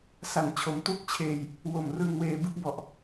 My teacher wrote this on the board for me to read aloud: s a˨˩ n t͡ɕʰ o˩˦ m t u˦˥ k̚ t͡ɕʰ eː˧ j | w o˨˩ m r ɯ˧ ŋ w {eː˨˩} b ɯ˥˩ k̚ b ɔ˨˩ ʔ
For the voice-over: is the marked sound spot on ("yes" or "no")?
no